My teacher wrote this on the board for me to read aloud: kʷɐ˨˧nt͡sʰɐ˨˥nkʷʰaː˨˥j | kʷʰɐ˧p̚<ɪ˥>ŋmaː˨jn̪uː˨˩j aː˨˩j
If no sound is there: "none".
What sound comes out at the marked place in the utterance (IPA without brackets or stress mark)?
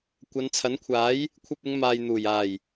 ɪ˨˧